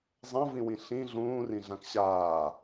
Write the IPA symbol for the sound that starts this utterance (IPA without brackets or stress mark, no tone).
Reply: zˤ